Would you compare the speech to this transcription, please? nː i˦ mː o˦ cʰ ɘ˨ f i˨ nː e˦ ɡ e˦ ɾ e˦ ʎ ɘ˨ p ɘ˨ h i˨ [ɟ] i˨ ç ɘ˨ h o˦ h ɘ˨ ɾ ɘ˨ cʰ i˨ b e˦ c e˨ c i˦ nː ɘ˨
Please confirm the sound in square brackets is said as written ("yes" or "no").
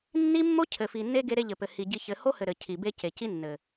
yes